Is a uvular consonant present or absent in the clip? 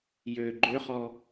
present